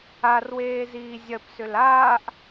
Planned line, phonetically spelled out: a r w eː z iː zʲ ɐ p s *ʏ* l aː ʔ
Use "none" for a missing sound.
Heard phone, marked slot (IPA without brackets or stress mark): ʏ